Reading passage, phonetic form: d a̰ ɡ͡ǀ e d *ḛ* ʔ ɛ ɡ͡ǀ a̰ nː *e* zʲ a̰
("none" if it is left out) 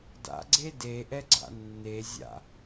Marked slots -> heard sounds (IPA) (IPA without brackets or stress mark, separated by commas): e, e